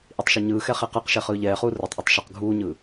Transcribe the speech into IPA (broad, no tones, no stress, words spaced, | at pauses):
ʔitˤʃeɲɯːxɛ χeqɯqʃɛ χɯːʎɛːχuː rɯtˤʔetˤ ʃʌq ɡʱuːɲɯː